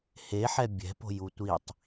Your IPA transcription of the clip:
heħɛ bʲɛ̤po̤ju tʷitˤ

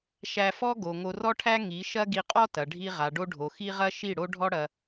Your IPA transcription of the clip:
ʃæ˧fɔ˦ɡo˨ ŋo˧rɔ˦ʈʰæ˦ ŋi˨˦ʃɐ˦ ɡi˧qʼɔ˦tɐ˨ ɖʱi˦ ʁa˨ɖo˧ ɖʱo˨xi˦ʁɐ˦ ʃi˦˨ɽo˦ɖʱɔ˦ɽɐ˧

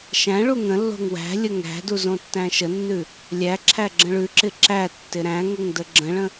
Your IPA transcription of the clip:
ʃæ̃ ɭuŋə̃lːo̤ŋ wæ̤lʲə ŋæ̤du zõtːæ̃ʃənːʉ | lʲæ ǁʰæɡ͡ǁə̃ɭʉǁɪ ǁætːɪ ɾæ̃ŋəŋ dəɡ͡ǁə̃ɭə̃

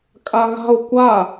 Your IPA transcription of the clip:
kʼaɣa̤o̯ kʷa

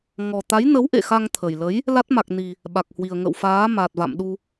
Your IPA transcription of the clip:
ŋɔ˨˩t̪a˨˦jnə˨˦w ʔḛ˧˨xa˧ŋt̪ʰə˨˩jlə˨˦j | la˦˥t̚ma˨˩k̚ni˨˩ | ɓa˨˩k̚hwi˨˩ə̯ ŋə̰˧˨wfaː˨˦ ma˨˩t̚va̰˧˨mɗu˧

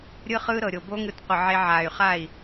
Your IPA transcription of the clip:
ɾʲɯ˦χɯː˦ɾɤ˨ɾʲo˨ bo˦ŋɯ˧tqʷɯ˨ʕe˧ ʕaː˨y̯χa˦˨i̯

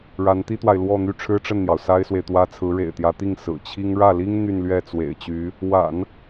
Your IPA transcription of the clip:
ɻa˧˥nt̪i˥t̪wa˨ɪ̯ lwɔ˥˧n̪y˥˩ ʈ͡ʂʰɻ̩˥ʈ͡ʂə˥˩nn̪jɑ˩ʊ̯ sa˥ɪ̯swe˨ɪ̯t̪wä˥ t͡sʰɹ̩˧˥ɻḛ˨˩ɪ̯t̪jä˧˥t̪i˥˩ŋ sɹ̩˨˩t͡ɕʰi˥ŋ ɻä˥˩li˥ŋ n̪y˥˧nlɥɛ˥˩t͡swḛ˨˩ɪ̯t͡ɕy˧˥ | wa̰˨˩˦n

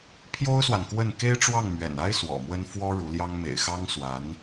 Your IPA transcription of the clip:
pʰjo˥ʊ̯swa˨nkwə˥˩n ke˥ɪ̯ʈ͡ʂwɑ˥˩ŋ mɥɛ̰˨˩na˥ɪ̯ swɔ̰˨˩mwə˥n fwɔ˥ ɻu˧˥ljɑ˥ŋ mḛ˨˩ɪ̯xɑ˥ŋ swa˧˥n

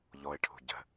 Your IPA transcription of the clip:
ʎɔɪ̯ʈʰṳ ɟə̤

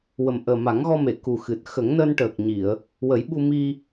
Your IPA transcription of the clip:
wə˨˩mʔəː˨˩ma˨˩˦ŋɣɔ˧ me˨˩˨ku˨˩xɨ˨˩t̚ xə˨˩˦ŋnəː˧nʈəː˨˩k̚ɲi˨˩˨ə̯ | wə˨˩˦jɓu˧mi˧

